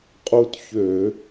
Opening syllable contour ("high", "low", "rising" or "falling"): high